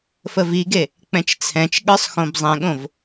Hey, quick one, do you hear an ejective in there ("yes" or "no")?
no